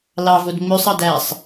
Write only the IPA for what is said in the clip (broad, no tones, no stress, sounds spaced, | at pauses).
l ɑ v o d ŋ͡m ø sˤ ɑ d æ sˤ